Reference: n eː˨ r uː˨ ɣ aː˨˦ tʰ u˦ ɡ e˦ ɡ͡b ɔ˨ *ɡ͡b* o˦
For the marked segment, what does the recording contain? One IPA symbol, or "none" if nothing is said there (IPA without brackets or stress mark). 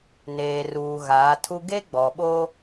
ɓ